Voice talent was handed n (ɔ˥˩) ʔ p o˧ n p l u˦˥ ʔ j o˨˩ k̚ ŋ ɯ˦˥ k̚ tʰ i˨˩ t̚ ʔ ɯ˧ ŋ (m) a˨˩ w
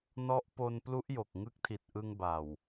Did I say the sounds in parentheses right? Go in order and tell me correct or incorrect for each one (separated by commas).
incorrect, incorrect